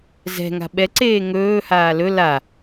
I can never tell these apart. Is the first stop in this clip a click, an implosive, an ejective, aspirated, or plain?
implosive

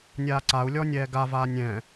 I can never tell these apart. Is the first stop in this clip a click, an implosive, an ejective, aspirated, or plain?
click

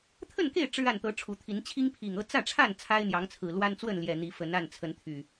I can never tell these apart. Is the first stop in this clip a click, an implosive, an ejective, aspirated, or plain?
aspirated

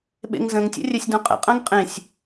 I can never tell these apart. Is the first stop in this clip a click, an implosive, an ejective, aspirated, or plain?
implosive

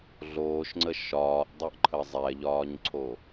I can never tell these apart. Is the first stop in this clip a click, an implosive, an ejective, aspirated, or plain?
click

